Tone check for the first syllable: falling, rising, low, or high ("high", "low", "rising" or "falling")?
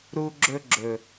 high